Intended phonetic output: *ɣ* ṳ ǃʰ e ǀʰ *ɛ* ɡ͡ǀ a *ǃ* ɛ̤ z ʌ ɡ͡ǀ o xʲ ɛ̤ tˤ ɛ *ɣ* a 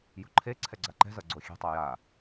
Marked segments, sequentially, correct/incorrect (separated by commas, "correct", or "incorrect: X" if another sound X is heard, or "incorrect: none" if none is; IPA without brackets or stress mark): incorrect: j, correct, correct, incorrect: j